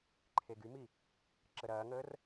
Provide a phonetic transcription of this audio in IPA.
ǃʰeɡymi | ǁəɾɐːŋəːr

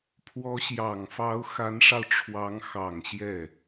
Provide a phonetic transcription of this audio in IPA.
pʰwɔ˧˥ɕjɑ˨˩ŋfɑ˧˥ʊ̯ xa˧˥nʂɑ˧ʊ̯ʈ͡ʂʰwɑ˧˥ŋ xɑ˨˩ŋ ɕjɛ˥˩

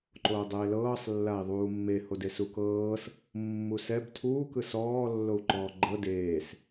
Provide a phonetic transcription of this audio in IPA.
ǃoːdˤeːlɤːsˤ lːai̯ðˤuːmːe hodesukɤːs | mːusɛb tʰuːkɯ sɔːlːou̯ǃɔː ɡ͡ǃɤ deːs

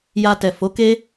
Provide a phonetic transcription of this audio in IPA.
ja˧tɛ˨fo˨˦ke˦

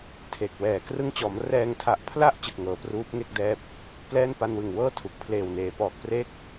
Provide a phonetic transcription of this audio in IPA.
tʰe˨˩k̚wɛː˨˩ krɯ˧ŋt͡ɕɔː˩˦m rɛː˧ŋtʰa˨˩ʔpʰla˥˩ʔ t͡ɕɯ˨˩k̚ŋɤː˩˦pruː˦˥p̚ŋe˥˩k̚ dɛː˦˥p̚ | plɛː˥˩npa˧nwɯ˨˩ŋwɤː˥˩ tʰu˨˩k̚ pʰleː˨˩wneː˩˦pɔː˨˩k̚ pre˦˥k̚

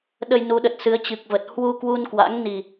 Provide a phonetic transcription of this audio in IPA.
ɗə˧jnu˨˦ɗə˨˩t̚sɨ˨˦ə̯ t͡ɕɨ˨˩k̚və˨˩t̚ hwu˧ kwu˧nkwa̰˧˥ŋ ni˨˩

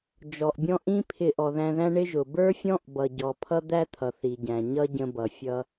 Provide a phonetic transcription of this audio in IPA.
d͡ʒɔ˩ʔbʲɔ̃˥ ʔĩ˥ pʰɪ˧ʔɔ˩ðæ̃˧ðæ̃˥ ɳɪ˥ʒʊ˩ bə˞˥fʲɔ̃˥ʔ bʌ˩ɟɔ˩pʰʌ˥ d̪æ˥t̪ʰʌ˩ θi˩ɟæ̃˩ ɲʌ˥ ɟə̃˧bʌ˩fʲʌ˧

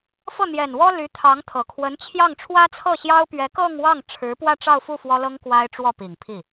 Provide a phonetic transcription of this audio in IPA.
fɤ˥˩n̪jɛ˨˩nwɔ˥ ly˧˥t̪ʰɑ˧˥ŋt̪ʰɤ˨˩ kʰwə˧˥nt͡ɕʰjɑ˥˩ŋ ʈ͡ʂʰwä˥t͡sʰɤ˥˩ɕjɑ˥ʊ̯ pɥɛ˧˥kɤ˥˧ŋwɑ˥˩ŋʈ͡ʂʰɻ̩˧˥ pwä˥˧ʈ͡ʂɑ˥˧ʊ̯fu˥˩ fwɔ˥lɤ˥ŋ kwa˥ɪ̯ʈ͡ʂwɔ˥˩pi˨˩ŋpʰi˥˩

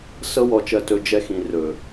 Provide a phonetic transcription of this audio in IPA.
sɤ˧wɔ˨t͡ʃɜ˨tɵ˨ d͡ʒɛ˧xĩ˨rɵ˨

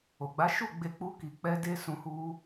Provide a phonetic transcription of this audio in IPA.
o˨ɡ͡ba˨˦ ʃu˦˨ɡ͡be˧k͡pu˧ ki˨k͡pɛ˧ de˦sũ˧hu˧

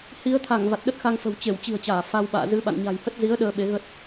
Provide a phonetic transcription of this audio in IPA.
hi˨˦ə̯t̪ʰa˧˩ŋ va˨˩t̚ɗə˦˥t̚xa˧ŋfə̤˨˩w t͡ɕe˧˩wt͡ɕi̤˨˩ə̯t͡ɕaː˧˩ fa˧wɓa̰ː˧˨zɨ˨˦ ɓa̰˧˨nɲa̤˨˩jhə˦˥t̚ zi˨˦ə̯ ɗəː˧ ɓe˨˦ɣə˦˥t̚

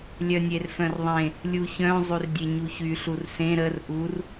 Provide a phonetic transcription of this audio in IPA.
lʲœnʲerfœ̃rðˤẽ | lʲuçœ̃ zˤyrdʲeɲuçy ɬursẽ ɾər ʔur

